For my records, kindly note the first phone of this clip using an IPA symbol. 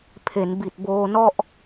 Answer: pʰ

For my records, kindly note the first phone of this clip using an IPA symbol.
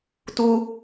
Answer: t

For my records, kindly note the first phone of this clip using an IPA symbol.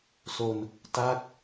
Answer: s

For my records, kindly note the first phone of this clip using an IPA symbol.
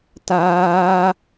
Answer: t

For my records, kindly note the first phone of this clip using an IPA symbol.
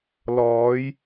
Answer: l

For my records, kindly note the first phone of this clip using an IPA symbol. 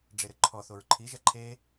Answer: ɖ͡ʐ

